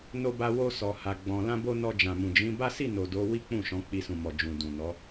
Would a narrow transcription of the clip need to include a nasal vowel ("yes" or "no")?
yes